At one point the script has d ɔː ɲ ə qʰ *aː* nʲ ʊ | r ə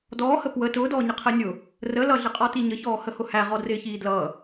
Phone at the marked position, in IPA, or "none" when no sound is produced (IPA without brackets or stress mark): əː